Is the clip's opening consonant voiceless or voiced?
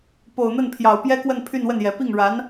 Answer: voiceless